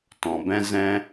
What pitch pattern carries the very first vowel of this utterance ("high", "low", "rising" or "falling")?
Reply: low